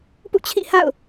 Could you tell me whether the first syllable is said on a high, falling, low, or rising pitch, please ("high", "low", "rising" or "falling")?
falling